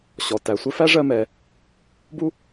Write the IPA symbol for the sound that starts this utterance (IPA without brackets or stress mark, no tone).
ɕ